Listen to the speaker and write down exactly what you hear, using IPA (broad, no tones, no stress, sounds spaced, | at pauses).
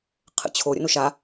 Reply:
qʰ ə̰ t͡ɕʰ o ɾʲ ə̰ n o ʃ a